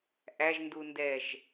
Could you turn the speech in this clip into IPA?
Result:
ʔ æ ʒ n d u n d ɛ ʒ

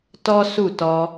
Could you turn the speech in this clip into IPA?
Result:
t ɔ˦ s u˦˨ t ɔ˧

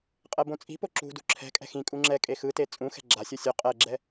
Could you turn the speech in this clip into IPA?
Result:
qʼ ɛ b õ t͡sʼ i̤ p o ǁ ṳ d ṳ ǁʰ ɛ̤ kʼ ɛ̤ x ĩ kʼ u ŋ͡ǁ ɛ kʼ e x ɯ t e t͡sʼ ũ x ɛ̤ ɡ͡ǁ a sʲ o sʲ o qʼ ɛ ɡ͡ǁ ɛ

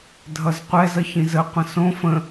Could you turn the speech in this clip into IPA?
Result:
dʱ ʌ z qʷ ɛ z ʌ ç ĩ z ə qʷ ə̃ s õ f ə̃

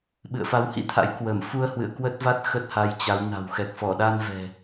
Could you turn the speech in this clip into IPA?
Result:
ɓ ɨ̰˧˨ ə̯ f a˨˦ w h ḭ˧˥ t̪ʰ a̰˧˥ j k w ə˧˩ m f u˧ ə̯ h w ɨ̰˧˨ ə̯ k w ə˦˥ t̚ v a˦˥ t̚ x ə˦˥ t̚ h a˧ j t͡ɕ a˨˦ w n a̤˨˩ w x ɛ˨˩ k̚ f ɔ˧˩ ɗ a˧ n v ɛ̤˨˩

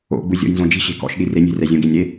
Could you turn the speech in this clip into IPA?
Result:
o̰ ɡ͡b u zʲ ɔ̰ j n z õ d͡ʒ i̤ ɕ e̤ k ɔ̰ ʃ ɗ i r e nʲ e̤ r ɛ zʲ õ ɡ e nʲ ɾ e

